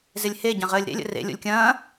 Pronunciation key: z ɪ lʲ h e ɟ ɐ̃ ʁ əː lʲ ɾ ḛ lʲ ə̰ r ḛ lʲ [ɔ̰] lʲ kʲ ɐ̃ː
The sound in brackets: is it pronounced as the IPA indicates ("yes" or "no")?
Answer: no